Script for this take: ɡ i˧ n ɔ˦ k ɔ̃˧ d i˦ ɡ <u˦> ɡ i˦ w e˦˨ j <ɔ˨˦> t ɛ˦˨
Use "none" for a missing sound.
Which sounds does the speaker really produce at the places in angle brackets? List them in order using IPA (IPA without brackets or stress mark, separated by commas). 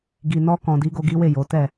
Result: o˦, o˨˦